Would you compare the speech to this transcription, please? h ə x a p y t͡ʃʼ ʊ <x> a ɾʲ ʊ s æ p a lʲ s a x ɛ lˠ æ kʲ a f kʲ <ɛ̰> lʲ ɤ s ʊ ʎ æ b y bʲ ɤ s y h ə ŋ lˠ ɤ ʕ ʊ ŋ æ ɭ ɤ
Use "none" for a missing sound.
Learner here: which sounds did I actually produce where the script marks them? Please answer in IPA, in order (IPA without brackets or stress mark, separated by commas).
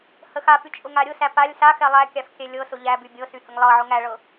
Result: ŋ, ɛ